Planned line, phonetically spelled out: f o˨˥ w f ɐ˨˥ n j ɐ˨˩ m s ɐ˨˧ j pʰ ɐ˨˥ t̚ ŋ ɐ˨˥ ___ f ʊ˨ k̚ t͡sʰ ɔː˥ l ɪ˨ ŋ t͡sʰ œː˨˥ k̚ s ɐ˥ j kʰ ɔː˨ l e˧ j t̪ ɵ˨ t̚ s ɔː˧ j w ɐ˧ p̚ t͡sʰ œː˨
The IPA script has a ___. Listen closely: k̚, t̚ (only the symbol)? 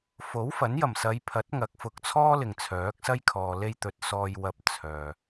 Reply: k̚